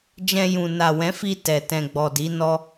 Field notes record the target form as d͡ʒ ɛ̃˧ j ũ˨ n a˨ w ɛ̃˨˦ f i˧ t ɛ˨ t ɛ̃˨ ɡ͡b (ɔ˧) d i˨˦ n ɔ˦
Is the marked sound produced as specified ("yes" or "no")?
no